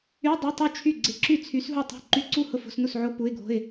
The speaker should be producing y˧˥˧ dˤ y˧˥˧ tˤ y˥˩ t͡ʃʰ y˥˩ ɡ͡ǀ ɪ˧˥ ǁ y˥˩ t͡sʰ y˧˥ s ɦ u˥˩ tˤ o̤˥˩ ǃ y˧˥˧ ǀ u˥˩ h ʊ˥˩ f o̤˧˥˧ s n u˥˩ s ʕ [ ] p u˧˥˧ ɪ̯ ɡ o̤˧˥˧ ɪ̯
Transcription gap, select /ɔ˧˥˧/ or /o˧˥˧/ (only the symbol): o˧˥˧